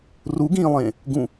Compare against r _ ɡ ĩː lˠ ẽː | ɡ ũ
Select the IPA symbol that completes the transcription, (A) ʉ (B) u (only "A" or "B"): B